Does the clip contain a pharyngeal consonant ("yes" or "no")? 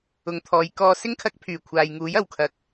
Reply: no